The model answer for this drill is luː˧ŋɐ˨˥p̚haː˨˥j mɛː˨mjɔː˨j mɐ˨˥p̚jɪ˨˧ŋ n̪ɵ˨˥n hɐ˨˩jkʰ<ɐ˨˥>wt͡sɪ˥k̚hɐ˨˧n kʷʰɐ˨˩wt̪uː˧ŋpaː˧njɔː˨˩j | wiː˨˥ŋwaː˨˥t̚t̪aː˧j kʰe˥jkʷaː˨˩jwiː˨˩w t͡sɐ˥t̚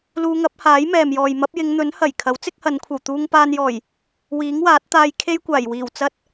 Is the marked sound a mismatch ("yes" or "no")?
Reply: no